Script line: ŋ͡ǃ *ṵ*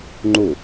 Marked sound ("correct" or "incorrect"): incorrect